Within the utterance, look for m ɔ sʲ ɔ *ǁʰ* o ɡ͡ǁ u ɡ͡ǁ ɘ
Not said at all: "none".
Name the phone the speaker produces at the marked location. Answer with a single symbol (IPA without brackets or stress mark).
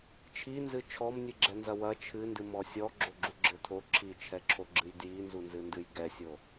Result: ɡ͡ǁ